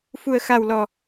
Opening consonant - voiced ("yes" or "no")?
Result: no